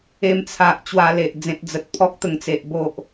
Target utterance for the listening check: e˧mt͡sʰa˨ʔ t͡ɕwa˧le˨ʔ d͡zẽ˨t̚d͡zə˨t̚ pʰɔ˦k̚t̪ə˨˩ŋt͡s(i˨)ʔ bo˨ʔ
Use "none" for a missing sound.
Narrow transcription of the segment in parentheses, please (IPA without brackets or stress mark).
e˨